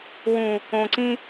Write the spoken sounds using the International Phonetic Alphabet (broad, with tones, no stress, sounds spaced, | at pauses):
w ũ˨ | õ˨ ǀ ĩ˦